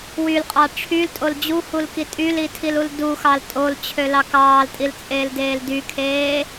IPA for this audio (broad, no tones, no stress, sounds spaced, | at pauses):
w y l qʼ ɑ ʈ͡ʂʰ y l tʼ o l d͡ʑ u h u l k i tʼ y l i tʰ i l u l d u x ɑ l tʼ o l t͡ɕʰ ø l ɑ k ɑː l tʼ i l t͡sʼ eː l d eː l d y kʰ eː